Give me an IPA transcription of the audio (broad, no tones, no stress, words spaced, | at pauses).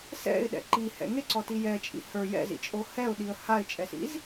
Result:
sɛ̰ɪ̯ɗɛ̰ ǃihɛ̰ ŋeǀɔti jɛt͡ʃʼḭ hə˞ jɛ̰zḭt͡ʃʼo hɛʊ̯ɗiə̯ haɪ̯t͡ʃʼɛsḭz